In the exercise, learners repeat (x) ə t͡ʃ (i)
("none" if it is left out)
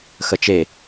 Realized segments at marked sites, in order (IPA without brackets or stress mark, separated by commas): x, e